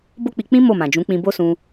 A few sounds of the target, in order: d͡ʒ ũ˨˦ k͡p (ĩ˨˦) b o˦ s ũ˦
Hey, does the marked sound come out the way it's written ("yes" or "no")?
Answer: no